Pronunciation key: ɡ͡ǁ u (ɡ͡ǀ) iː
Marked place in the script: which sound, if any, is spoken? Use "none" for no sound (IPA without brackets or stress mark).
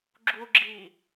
ɡ͡ǁ